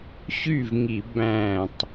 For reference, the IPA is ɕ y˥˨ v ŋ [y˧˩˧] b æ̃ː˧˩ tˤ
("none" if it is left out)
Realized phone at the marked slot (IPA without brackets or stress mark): i˧˩˧